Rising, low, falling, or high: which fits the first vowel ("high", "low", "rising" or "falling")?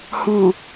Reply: low